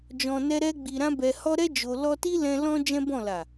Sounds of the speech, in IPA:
d͡ʒɔ̃˧nɛ˦ɾɛ˦ ɡ͡bi˧ɾã˦bɛ˧hɔ˦ ɾɛ˦ d͡ʒo˧ lɔ˦ ti˦lɛ̃˧ lɔ̃˦ d͡ʒɛ̃˦bɔ̃˦˨ la˨

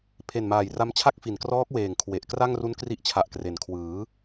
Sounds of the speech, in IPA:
pʰe˨˩nmaː˨˩jra˦˥mt͡ɕʰa˥˩k̚ fi˨˩nkrɔː˦˥k̚weː˨˩ŋ kʰwe˨˩ʔ kra˥˩ŋru˦˥nkri˦˥ʔt͡ɕʰa˨˩ʔ kre˩˦nkʰwɯː˩˦

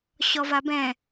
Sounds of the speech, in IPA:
ɕɔvabɛ̃

